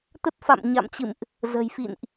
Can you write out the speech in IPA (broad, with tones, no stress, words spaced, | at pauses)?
t̪ə˦˥t̚fa̰˧˨mɲa̰˧˨mt͡ɕɨ̰˧˨mʔ | zə̤˨˩jfḭ˧˨nʔ